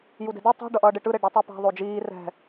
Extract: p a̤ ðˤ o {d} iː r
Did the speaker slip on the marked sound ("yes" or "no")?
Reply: yes